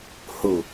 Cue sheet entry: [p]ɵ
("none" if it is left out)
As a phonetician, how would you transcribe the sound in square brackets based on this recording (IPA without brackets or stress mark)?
h